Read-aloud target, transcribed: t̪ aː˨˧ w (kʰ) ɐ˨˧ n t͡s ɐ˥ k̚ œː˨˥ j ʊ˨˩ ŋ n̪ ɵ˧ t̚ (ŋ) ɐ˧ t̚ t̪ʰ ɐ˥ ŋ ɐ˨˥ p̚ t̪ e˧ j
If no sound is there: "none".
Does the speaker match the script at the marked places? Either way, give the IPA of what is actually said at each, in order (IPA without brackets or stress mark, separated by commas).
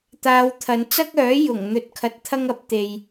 t̪ʰ, kʰ